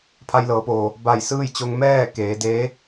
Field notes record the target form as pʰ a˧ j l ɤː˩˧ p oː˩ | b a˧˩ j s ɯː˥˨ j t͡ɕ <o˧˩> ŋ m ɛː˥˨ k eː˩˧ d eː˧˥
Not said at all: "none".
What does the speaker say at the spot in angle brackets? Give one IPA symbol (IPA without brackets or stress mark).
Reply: o˧